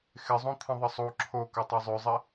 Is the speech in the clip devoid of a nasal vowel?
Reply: no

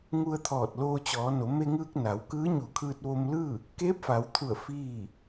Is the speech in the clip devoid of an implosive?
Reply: yes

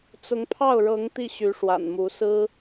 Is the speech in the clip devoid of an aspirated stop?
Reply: no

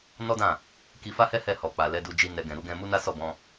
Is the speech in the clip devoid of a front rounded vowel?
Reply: yes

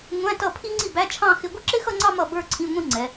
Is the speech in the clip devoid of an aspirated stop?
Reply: no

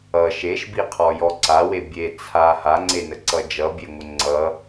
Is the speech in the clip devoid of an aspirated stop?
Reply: no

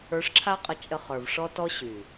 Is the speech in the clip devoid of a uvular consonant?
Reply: no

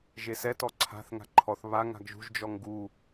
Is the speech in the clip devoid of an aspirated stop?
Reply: no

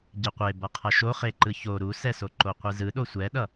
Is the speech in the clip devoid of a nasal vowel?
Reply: yes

